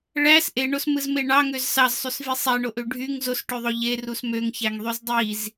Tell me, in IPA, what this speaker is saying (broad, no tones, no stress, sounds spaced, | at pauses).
ɭ æ s ʔ e ɳ o s m ɯ z m e ɳ ɑ ŋ ø z s ɑ z sˤ y s v i sˤ æ ɳ o ʔ ø ɖʱ y ŋ z o s ʈ ø ðˤ o ʎ e r u s m ø ŋ ç æ ŋ ðˤ y z dˤ i z